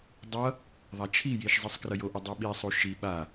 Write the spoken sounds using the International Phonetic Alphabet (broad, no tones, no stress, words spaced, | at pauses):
dˤʌ | ðˤat͡ʃʰijiʃ zˤisˤkrʌjoʔʌ dˤiɓisˤu ʃi ɓa